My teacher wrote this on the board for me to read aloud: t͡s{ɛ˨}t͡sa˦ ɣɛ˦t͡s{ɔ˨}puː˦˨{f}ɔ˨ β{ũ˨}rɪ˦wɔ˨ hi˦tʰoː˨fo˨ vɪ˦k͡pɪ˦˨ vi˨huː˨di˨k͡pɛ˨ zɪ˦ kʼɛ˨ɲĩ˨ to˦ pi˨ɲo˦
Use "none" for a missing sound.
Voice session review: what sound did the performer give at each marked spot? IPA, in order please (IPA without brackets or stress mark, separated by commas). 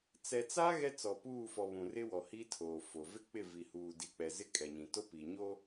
ɛ˨, ɔ˨, f, ũ˨